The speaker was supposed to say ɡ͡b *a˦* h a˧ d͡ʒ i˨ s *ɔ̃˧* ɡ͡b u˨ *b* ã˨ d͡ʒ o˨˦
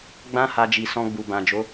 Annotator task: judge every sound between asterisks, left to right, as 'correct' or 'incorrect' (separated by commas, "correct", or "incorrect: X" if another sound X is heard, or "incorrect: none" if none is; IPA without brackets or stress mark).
incorrect: ã˦, correct, correct